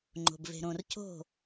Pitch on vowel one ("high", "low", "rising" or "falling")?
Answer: low